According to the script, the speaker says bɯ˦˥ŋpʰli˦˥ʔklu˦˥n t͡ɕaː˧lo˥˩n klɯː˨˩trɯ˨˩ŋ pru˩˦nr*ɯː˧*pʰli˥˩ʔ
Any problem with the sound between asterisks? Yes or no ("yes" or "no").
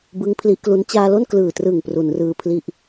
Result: no